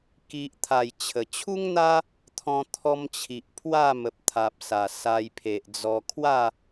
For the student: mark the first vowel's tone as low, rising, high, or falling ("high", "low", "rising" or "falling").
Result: low